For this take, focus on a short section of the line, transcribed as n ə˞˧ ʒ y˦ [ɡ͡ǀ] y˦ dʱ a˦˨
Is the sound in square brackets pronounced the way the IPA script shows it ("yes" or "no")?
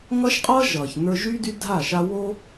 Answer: no